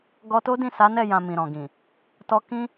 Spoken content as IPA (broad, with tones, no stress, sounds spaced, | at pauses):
ɡ ɔ˧ t o˦ d ĩ˦˨ s a˨˦ n ɛ˦˨ j ã˨ m ĩ˨ ɾ ɔ̃˨ ɡ ĩ˨ | t ɔ˧ k ĩ˦